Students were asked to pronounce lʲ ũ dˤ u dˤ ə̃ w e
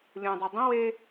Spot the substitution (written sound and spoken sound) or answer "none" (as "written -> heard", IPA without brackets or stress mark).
none